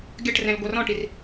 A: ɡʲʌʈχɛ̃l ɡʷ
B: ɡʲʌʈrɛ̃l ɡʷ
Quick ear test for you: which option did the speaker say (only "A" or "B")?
B